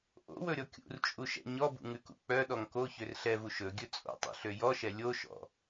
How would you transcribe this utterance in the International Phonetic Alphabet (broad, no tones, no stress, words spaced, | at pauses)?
ʔo̰wɵɾʲɔ kʲṵrt͡ʃʼuʃɛ̰ ɲɔbṵŋʉkṵ k͡pœɗɔŋ koçør ɬɛvu ʃɵɡʲɵ t͡sʼo̰tˤṵɬø jɔʃɛ lʲoʃɔ̰